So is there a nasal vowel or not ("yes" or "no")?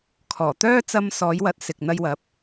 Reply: no